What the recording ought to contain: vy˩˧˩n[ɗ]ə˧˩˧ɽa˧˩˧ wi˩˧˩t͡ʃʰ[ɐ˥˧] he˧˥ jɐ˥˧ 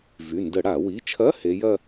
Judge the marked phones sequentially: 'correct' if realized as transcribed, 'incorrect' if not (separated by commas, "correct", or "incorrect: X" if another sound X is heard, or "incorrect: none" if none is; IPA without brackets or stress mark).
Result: incorrect: d, incorrect: ɐ˧˥˧